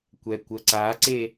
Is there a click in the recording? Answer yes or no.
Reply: yes